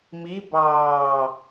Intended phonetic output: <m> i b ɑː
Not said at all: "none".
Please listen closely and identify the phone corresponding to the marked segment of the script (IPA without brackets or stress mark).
m